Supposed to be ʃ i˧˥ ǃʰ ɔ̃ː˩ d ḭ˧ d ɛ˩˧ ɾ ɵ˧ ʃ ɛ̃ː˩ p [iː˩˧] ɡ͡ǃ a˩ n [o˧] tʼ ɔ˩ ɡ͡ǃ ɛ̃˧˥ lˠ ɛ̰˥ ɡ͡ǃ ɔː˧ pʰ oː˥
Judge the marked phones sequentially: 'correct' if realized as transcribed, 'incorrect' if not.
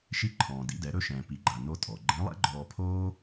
incorrect: i˩˧, correct

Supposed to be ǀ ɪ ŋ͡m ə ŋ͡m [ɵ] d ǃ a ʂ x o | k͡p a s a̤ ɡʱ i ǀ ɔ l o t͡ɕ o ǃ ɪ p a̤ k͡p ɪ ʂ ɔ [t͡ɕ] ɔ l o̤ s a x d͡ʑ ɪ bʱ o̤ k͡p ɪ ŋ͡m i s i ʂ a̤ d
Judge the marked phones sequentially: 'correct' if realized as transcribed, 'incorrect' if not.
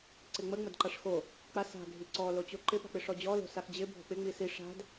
incorrect: ə, incorrect: d͡ʑ

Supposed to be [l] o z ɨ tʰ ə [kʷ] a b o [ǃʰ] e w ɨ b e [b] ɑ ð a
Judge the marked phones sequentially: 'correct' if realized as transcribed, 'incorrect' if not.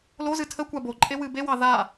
correct, correct, incorrect: ǃʼ, incorrect: w

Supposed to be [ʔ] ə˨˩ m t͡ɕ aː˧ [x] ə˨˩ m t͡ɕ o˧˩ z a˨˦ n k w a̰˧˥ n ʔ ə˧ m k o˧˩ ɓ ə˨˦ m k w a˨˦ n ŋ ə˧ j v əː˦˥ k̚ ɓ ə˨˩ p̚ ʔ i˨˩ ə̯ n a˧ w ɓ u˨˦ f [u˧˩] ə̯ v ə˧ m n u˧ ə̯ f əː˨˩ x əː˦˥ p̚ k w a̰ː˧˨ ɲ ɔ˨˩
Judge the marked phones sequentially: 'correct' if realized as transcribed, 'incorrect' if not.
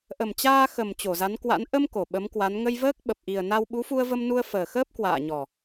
correct, correct, incorrect: u˧

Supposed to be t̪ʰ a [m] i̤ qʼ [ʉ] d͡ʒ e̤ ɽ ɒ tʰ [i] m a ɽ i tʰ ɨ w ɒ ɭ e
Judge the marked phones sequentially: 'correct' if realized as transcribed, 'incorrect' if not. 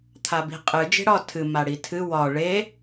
incorrect: b, incorrect: ɨ, incorrect: ɨ

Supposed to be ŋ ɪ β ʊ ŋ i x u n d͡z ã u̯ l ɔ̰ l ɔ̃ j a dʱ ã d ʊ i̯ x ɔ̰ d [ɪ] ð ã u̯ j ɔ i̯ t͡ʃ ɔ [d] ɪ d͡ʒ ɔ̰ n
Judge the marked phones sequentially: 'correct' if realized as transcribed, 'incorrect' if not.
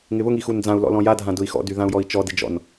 incorrect: y, correct

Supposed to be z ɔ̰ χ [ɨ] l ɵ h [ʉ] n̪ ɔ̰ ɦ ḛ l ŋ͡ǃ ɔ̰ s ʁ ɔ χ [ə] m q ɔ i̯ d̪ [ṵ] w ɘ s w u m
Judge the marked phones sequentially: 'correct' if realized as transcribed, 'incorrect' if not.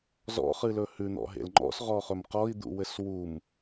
correct, correct, incorrect: ɵ, correct

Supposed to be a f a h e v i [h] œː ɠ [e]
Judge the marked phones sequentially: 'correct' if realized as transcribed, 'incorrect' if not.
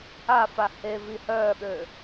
correct, incorrect: ø

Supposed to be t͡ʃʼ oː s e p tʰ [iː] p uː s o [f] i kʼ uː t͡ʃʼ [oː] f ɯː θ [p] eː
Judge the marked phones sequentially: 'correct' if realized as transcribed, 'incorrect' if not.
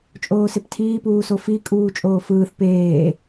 correct, correct, correct, correct

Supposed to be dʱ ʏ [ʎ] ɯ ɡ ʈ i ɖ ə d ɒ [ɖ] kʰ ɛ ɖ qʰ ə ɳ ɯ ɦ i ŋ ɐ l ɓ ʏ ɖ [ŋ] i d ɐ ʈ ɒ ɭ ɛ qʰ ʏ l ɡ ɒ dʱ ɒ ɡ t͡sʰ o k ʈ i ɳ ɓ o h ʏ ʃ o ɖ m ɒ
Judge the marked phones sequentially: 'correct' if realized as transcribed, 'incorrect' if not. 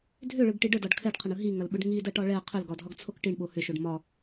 incorrect: ɭ, correct, correct

